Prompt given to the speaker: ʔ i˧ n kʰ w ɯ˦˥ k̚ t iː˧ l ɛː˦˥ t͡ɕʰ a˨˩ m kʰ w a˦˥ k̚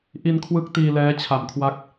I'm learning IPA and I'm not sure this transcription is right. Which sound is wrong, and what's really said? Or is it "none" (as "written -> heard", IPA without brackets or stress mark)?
none